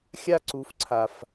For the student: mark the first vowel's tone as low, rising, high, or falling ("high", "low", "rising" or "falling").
high